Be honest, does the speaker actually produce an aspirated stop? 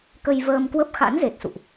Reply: no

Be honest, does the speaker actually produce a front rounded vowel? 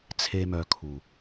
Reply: yes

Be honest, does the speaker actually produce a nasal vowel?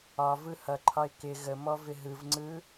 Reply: no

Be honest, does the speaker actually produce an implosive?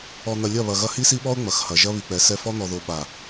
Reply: yes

